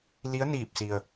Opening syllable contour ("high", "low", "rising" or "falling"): rising